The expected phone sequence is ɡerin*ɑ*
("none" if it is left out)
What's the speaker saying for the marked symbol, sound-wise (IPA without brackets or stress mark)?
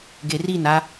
a